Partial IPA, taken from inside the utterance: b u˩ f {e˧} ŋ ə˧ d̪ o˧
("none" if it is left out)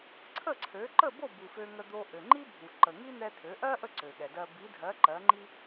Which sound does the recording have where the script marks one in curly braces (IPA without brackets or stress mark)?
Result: ø˧